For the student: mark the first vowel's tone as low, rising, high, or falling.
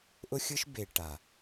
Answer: high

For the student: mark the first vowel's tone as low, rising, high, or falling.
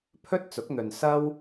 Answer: high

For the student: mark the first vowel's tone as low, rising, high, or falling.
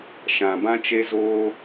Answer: low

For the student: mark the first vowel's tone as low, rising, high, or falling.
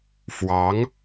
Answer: rising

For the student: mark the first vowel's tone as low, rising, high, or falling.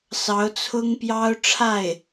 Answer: rising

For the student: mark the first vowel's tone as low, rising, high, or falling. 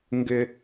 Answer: high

